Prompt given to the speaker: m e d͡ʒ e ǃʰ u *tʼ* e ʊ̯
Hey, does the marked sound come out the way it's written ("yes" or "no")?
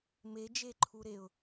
no